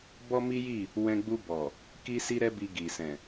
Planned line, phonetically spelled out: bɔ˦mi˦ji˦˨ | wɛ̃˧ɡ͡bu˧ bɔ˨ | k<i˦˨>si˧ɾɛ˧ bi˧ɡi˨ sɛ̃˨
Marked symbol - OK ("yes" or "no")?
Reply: no